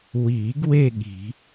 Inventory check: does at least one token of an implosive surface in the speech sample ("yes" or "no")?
yes